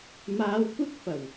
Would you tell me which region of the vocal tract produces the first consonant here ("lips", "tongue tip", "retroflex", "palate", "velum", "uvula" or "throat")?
lips